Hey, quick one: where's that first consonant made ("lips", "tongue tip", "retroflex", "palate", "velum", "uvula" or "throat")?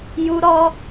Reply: palate